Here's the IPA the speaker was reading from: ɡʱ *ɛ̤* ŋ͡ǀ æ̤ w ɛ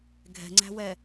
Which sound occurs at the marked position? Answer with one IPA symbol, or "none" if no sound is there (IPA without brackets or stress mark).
ɛ̤